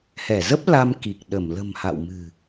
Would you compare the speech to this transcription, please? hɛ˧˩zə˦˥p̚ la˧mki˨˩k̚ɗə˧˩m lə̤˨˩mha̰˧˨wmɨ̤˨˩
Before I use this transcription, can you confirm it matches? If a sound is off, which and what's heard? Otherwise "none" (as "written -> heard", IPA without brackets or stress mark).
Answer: none